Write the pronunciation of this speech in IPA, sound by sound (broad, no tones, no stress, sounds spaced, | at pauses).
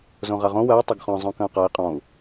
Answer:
z õ ʁ a ʁ õ w ɐ i̯ tˤ ɐ ɡ χ ɔ̃ zˤ õ k ɐ̃ u̯ q a i̯ qʼ ɔ̃ u̯